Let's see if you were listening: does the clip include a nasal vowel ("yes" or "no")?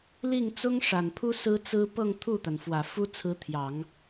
no